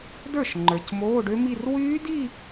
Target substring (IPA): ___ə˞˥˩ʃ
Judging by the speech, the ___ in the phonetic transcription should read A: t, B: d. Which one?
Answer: B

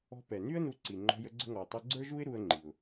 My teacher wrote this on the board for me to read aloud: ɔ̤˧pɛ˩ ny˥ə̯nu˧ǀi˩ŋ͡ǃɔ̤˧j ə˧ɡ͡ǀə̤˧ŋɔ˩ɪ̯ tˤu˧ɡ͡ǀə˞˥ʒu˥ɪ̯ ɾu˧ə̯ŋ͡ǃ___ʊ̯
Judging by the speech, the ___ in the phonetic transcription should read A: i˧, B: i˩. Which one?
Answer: B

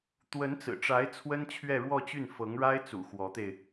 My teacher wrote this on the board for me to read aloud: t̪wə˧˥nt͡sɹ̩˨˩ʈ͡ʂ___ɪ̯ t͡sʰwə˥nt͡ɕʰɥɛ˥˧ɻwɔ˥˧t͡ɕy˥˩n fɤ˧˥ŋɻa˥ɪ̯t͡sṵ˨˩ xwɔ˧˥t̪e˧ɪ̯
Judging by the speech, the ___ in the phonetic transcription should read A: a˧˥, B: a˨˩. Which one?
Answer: A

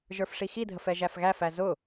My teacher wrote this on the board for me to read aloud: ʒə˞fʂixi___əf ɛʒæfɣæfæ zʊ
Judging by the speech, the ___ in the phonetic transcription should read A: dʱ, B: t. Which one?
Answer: A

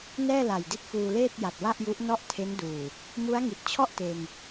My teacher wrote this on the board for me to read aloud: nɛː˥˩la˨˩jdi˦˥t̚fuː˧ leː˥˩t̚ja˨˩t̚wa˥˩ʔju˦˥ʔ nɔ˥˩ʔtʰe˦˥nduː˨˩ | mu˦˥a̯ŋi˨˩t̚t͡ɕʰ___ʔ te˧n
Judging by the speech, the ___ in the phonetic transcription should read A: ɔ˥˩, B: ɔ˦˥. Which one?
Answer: A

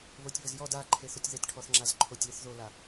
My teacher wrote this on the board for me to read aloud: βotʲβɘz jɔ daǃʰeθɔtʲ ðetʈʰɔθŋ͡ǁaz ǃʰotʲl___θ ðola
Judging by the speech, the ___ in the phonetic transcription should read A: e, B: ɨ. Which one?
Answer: B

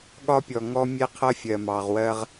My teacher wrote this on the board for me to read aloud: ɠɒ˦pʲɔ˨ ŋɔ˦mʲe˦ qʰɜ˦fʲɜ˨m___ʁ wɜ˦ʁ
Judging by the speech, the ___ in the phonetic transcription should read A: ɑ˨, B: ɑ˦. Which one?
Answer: A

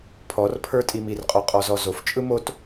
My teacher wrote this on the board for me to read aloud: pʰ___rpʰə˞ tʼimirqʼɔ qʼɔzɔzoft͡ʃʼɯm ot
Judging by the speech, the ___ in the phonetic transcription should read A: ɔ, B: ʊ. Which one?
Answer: A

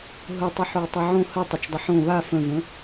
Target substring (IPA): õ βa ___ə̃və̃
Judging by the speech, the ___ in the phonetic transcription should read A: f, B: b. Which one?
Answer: A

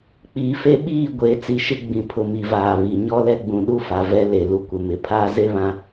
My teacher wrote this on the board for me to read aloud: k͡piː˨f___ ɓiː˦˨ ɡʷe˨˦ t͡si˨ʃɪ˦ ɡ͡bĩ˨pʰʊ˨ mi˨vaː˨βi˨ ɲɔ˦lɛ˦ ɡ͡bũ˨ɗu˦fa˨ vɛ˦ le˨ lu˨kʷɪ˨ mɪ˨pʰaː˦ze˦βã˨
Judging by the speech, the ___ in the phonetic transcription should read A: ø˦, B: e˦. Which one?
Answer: B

